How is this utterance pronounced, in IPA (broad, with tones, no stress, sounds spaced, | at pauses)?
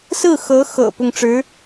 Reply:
s ɹ̩˥˩ x ɤ˧˥ x ɤ̰˨˩ p ʊ˥˩ ŋ ʈ͡ʂ ɻ̩˧˥